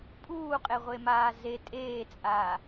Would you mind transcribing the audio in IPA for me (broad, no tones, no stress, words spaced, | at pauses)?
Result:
pʼuːqʼeʁʷemaː ze tʼeːt͡sʼaː